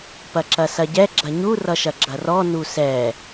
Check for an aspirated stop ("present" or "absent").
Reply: absent